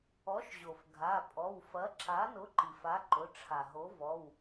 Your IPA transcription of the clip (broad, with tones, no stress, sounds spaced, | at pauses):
ɔ˨˥ ʃ ʑ o˩ f ɡʱ a˩˧˩ pʼ ɔ˩˧˩ w f ɐ˨˥ ǁ a˨˥ n ʊ˨˥ ǃ i˩ f a˨˥ ǃ ʊ˩˧˩ ʈ͡ʂʰ a˩ ɦ o˨˥ v ɔ˩˧˩ w